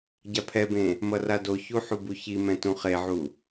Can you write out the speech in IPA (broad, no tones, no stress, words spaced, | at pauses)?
ɟapʰɛbẽ | mʌradoçu ħubuçimɛ̃ tũχeʕu